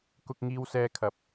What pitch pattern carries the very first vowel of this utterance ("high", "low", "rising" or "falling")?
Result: high